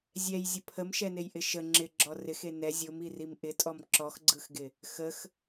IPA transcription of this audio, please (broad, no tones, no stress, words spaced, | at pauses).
zʲɛj zʲəpʰəmʃɛnej ʔɪʃə ŋ͡ǁɪ ɡ͡ǁɔrɪxe nɛ zʲomirim ʔɪtʼɔm ǁɔxɡ͡ǀɯxɡɪ | xəx